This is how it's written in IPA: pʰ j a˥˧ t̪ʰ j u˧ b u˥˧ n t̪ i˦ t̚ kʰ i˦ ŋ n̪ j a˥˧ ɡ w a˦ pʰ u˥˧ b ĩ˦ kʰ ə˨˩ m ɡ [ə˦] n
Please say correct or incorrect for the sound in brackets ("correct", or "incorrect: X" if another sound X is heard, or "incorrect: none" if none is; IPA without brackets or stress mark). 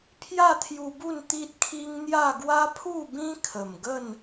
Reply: incorrect: ə˥˧